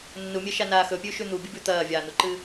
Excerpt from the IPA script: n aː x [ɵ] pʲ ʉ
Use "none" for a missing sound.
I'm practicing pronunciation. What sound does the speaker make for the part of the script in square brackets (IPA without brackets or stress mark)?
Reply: ɵ